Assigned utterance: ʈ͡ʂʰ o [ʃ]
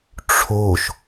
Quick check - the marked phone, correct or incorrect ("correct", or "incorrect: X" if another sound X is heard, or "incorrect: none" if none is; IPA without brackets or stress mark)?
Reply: correct